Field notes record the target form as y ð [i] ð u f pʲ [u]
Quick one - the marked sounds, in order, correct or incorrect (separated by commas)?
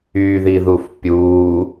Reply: correct, correct